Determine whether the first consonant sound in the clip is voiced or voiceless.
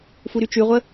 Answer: voiceless